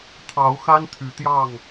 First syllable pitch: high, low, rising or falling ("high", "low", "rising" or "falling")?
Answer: rising